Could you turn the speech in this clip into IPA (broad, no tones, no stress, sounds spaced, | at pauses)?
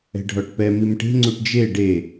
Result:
ɛ̤ ɖʱ ɔ ʈ p ɛ m i m ʈ e̤ ŋ͡ǀ u ʈ d͡ʒ e ɖ e